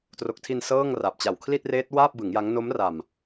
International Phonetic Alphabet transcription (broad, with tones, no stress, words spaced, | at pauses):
tro˨˩k̚tʰi˧n sɤː˥˩ŋra˨˩p̚t͡ɕa˨˩w kʰli˥˩t̚reː˦˥t̚waː˥˩p̚bɯ˩˦ŋ ja˦˥ŋ no˦˥mra˨˩m